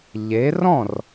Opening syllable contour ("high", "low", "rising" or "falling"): rising